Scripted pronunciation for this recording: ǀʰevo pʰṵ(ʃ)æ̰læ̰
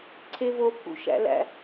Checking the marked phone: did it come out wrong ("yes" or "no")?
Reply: no